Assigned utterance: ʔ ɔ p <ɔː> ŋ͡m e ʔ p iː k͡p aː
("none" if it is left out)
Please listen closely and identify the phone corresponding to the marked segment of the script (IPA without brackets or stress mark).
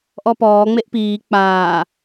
ɔː